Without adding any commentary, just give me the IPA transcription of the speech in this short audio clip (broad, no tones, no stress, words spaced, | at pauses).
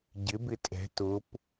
ɟɪbɪ tʼɛ̤ tʊp